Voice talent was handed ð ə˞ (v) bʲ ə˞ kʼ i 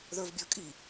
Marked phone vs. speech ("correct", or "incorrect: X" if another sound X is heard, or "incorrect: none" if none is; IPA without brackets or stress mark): correct